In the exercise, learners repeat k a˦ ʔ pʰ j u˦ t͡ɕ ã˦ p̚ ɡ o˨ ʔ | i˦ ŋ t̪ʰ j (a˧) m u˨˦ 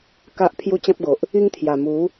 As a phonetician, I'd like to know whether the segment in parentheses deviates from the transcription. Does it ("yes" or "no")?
yes